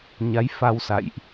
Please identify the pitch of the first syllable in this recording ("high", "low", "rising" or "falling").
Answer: rising